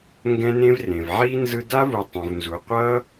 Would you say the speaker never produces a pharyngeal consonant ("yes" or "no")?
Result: no